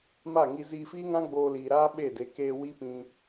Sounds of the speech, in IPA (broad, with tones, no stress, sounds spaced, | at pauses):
m a˦˨ ŋ i˧ z iː˧ f iː˦ ŋ ã˦ ɡ͡b oː˧ l iː˨ ɾ aː˦ ɓ e˦˨ d e˨˦ k eː˧ w i˦ p ĩ˧